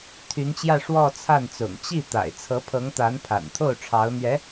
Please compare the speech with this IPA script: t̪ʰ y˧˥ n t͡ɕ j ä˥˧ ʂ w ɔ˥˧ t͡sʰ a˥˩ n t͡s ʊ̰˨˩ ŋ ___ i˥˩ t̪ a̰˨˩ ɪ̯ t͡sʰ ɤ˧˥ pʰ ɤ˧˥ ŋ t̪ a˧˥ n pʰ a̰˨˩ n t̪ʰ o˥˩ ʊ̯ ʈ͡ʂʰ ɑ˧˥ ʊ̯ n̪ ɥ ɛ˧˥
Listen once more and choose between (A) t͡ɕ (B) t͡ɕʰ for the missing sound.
A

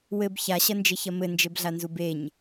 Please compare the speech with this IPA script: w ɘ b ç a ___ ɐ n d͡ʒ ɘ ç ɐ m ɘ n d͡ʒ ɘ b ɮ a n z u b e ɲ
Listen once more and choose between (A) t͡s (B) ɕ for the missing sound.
B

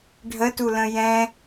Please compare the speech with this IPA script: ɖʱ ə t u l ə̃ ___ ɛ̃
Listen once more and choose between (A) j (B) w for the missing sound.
A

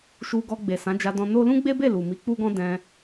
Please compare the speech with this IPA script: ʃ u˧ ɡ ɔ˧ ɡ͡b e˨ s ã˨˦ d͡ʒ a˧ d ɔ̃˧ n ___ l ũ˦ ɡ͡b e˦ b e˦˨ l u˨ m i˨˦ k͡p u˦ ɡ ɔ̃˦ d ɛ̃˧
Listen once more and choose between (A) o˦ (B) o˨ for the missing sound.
A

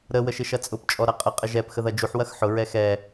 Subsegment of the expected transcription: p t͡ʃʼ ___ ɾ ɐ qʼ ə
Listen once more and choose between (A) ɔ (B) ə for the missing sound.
A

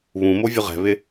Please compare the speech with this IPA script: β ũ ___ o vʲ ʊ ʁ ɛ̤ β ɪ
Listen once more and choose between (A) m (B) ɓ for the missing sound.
A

